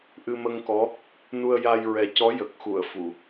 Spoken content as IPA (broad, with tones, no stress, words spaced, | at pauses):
ʔɨ˧mə˧ŋkɔ˧˥ | nu˧ə̯ja˧jɹɛ˨˩ cɔ˧˥jə˨˩k̚xu˨˩˨ə̯ fu˨˩˨